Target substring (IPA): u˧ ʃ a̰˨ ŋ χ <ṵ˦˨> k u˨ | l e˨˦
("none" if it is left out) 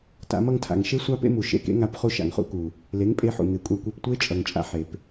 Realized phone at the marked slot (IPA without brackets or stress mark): ṵ˦